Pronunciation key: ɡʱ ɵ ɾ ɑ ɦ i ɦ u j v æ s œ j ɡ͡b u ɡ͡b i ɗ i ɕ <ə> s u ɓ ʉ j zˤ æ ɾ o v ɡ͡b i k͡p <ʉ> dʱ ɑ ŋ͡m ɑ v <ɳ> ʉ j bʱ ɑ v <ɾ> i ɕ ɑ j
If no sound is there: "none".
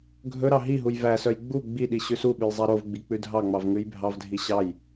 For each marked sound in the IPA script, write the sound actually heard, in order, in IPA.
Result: ʉ, ʉ, ŋ, dʱ

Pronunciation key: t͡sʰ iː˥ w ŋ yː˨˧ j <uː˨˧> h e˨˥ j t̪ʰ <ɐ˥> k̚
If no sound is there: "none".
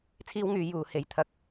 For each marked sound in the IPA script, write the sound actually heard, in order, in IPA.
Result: uː˨˧, ɐ˧

